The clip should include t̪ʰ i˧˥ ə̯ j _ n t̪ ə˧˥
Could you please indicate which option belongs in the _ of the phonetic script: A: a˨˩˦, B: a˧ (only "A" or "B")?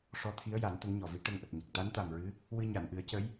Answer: A